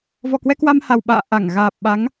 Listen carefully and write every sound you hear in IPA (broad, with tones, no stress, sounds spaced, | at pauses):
v ɔ˨˩ k w ɛ˧ k w a˧ m h a˨˩ w ɓ a̰ː˧˨ ʔ a˧˩ ŋ ɣ aː˨˩ p̚ ɓ a˨˦ ŋ